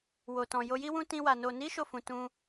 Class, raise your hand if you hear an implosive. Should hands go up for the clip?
no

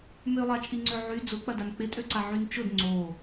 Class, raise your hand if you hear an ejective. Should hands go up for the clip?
yes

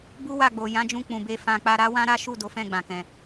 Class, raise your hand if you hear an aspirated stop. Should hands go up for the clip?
no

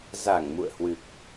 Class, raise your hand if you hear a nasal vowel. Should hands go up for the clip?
no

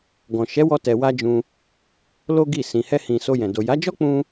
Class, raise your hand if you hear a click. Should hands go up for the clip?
no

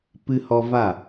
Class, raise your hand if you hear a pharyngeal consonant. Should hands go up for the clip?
no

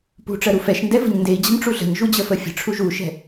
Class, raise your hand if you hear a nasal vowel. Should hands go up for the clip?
no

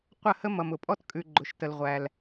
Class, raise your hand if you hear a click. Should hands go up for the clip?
yes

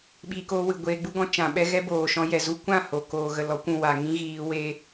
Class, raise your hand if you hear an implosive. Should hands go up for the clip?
yes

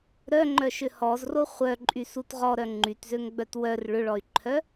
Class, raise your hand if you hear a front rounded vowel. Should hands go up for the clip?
yes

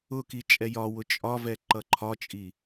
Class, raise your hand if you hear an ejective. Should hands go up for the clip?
yes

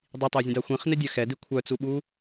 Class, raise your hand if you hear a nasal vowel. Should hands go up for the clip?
yes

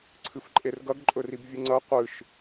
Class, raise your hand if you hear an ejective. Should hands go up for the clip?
yes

